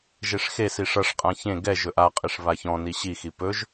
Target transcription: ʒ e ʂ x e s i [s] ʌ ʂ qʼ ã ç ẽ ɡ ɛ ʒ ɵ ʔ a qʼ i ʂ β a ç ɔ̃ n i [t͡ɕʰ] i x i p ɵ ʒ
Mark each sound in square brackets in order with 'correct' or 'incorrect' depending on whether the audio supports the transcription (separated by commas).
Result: incorrect, incorrect